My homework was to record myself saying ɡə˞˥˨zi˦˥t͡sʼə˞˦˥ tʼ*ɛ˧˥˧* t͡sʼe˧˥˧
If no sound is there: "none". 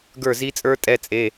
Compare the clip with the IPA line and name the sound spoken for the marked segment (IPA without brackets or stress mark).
ɛ˧˥˧